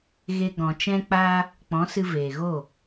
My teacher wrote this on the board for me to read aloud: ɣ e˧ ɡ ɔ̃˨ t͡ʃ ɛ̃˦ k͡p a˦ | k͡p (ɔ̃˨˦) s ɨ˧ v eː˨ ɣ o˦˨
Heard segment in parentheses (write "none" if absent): ɔ̃˨˦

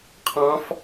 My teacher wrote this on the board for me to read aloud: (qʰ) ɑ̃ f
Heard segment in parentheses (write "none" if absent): qʰ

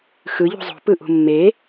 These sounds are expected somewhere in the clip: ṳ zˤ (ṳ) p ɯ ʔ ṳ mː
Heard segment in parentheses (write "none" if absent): o̤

